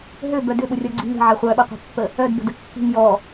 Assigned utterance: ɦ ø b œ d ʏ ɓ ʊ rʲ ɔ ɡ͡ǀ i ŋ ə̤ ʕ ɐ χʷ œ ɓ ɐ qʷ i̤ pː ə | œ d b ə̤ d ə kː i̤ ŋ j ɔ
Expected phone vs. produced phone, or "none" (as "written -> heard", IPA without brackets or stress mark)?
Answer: none